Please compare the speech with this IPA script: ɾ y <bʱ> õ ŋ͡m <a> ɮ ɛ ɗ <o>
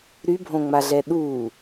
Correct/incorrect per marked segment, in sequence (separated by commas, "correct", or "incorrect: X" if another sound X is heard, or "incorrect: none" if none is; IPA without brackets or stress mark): correct, correct, incorrect: u